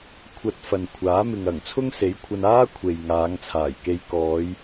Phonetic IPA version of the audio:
kʷʰɐ˧t̚fɐ˨n kʷʰaː˨˥mɪ˨ŋɐ˨˩ŋ t͡sʰʊ˥ŋse˨˥jkʷʰɐ˧n aː˥ kʷʰe˨jŋaː˨˧ŋ t͡sʰaː˨˩jke˧j kɔː˨˧j

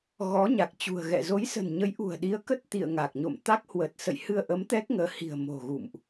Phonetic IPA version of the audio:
ɣɔ˨˦ɲa˨˩k̚t͡ɕṳ˨˩ə̯ɣɛ̰˧˨ zo˨˦jsə̤˨˩nɲə˨˦j ʔṳ˨˩ə̯ɗi˨˦ə̯kə˦˥t̚ t̪ḭ˧˨ə̯ŋa˨˩k̚ɲo̰˧˨m t̪a˦˥k̚ hwə˨˩t̚sə̰˧˨j hɨ˧ə̯ʔə˨˦m t̪ɛ˦˥k̚ŋəː˨˦hi̤˨˩ə̯ mo̤˨˩ɣṵ˧˨mʔ

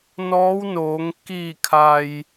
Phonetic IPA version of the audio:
nɔː˧˥wnoː˩˧ŋ kiː˧˩kʰa˩j

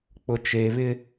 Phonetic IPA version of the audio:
k͡pʊ˨t͡ʃe˨βɪ˦

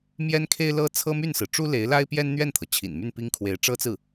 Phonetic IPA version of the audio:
mjɛ˥nkʰe˥ɪ̯lɤ˥ t͡sʰɤ˥my˥˩nsɹ̩˩ ʈ͡ʂu˥le˧˥ɪ̯la˥ɪ̯ pjɛ˥nn̪ɥɛ˥˩nt̪ʰɤ˩ t͡ɕʰḭ˨˩nmy˥˩npi˥ŋ kʰwe˧˥ɪ̯ʈ͡ʂɤ˥t͡sɹ̩˥˩

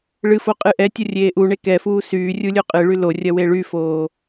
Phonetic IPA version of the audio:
ɭɨfo qʼɨʔɛtʲo rʲeːʔuɳe kɛfuː syː rʲulʲoqʼɨɭy lorʲɐ weɭyfoː

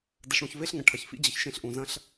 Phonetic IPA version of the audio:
də˧ɬɽũ˧çve˦ɬŋɐ̃˨ ʈʰɐ˨çfḭ˦d͡ʑə˨çʃẽ˧ɬ ʔũ˨zɐ̃˦ɬ

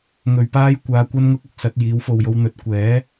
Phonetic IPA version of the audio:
ŋɵ˧ɥpaː˥j kʷaː˨˧ kʷɐ˥nŋʊ˥k̚ ʊ˧k̚sɐ˨˥t̚jiː˨˥w fo˨wjo˧w n̪ɵ˨t̚kʷɛː˨˥

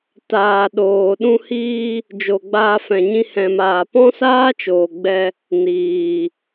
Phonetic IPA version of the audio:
taː˨ɗoː˨ ɗũ˧hiː˧ | d͡ʒo˨ɡ͡baː˧fɛ̃˨ ɲĩ˧hɛ̃˨maː˨ pɔ̃˦saː˦t͡ʃoː˨ɡ͡bɛ˧ | niː˨

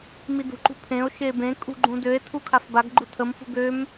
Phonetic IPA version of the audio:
midṳǃṳ pʰẽo̯ʃe bẽ kʼṳɡ͡ǃũ døe̯tʰu kʰafbaɡɡ͡ǃu tʰəmfṳ ɡøm

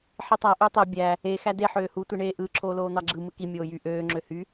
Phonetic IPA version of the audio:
ħitˤæ ʔøtˤe bʲæ | e xæde ħøːhu tʷiɳeːʔɯ ǁʰoːloːn̪ɑɡ͡ǁɯ mɯki mʲoːjy ʔøː ŋ͡ǁøhy

